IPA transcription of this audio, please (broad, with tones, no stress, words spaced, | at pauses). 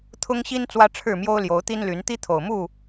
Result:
t̪ʰʊ˦ŋɕi˦n t͡swä˦ʈ͡ʂʰɻ̩˥˨mjo˦ʊ̯ ljo˨˦ʊ̯t̪i˦nly˨˦n t̪i˦t̪ʰo˨˩ʊ̯mu˥˨